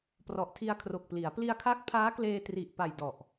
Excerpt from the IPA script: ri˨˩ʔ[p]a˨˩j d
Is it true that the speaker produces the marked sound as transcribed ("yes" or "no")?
yes